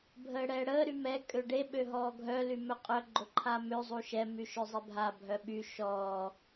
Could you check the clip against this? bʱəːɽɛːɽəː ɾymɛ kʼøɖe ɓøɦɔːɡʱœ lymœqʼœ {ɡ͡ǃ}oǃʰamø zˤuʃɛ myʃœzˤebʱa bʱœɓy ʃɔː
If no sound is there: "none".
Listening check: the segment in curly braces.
ɡ͡ǃ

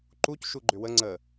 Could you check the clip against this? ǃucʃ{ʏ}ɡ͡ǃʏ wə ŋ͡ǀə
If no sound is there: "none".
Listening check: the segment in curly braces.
u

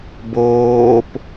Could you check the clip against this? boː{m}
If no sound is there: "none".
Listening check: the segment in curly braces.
p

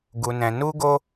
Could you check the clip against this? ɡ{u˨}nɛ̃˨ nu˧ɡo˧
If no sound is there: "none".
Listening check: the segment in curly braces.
u˨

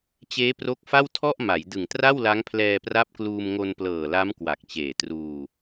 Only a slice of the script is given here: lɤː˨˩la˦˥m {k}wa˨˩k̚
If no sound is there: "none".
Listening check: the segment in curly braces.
k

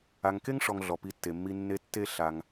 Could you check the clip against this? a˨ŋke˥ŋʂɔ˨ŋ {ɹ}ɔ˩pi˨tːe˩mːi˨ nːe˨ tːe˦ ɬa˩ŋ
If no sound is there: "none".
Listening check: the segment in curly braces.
ɮ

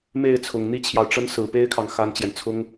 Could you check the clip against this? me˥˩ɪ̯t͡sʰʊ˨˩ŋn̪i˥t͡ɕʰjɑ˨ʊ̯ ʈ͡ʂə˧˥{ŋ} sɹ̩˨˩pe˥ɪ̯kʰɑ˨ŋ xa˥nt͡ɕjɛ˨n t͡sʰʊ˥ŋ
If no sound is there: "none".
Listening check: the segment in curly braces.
n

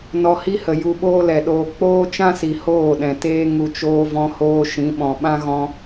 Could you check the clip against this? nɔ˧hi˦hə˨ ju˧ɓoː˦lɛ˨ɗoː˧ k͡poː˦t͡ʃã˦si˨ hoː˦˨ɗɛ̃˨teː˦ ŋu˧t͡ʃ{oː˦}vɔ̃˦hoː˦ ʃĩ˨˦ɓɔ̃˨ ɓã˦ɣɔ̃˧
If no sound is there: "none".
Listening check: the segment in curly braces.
oː˦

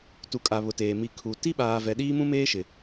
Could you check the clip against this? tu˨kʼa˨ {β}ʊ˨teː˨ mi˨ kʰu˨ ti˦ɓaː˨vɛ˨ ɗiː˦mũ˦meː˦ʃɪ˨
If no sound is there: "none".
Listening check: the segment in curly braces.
β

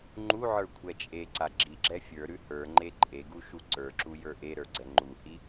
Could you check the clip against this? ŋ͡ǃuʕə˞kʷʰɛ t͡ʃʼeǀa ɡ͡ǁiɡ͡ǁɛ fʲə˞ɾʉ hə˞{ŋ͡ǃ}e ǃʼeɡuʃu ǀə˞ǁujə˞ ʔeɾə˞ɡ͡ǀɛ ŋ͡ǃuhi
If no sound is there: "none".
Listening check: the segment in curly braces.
ŋ͡ǃ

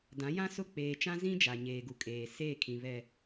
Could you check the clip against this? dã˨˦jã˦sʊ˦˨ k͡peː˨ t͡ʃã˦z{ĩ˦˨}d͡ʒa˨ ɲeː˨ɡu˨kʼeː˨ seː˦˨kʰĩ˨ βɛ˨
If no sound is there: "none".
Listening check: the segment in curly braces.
ĩ˦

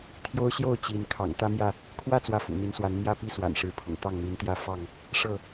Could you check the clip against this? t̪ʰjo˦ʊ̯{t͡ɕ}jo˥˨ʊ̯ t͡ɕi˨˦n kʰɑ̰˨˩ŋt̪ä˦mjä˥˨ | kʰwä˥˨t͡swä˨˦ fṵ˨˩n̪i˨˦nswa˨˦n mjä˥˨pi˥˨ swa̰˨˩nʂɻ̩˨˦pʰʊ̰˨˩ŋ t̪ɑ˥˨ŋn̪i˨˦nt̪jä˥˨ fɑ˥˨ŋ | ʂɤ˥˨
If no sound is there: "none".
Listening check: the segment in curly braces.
ɕ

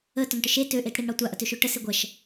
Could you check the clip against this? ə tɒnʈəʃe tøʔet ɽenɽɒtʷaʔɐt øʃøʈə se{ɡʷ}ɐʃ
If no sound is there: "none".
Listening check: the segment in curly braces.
ɡʷ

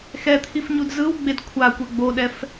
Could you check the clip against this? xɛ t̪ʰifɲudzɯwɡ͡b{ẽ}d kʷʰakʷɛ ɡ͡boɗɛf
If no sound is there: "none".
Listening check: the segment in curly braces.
e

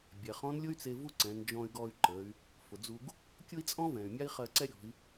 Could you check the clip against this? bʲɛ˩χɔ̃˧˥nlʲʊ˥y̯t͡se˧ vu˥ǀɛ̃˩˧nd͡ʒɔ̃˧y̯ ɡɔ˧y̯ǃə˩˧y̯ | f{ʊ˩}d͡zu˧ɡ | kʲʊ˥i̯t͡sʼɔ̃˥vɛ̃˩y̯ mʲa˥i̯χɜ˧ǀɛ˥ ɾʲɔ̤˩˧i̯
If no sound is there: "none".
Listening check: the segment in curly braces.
ʊ˩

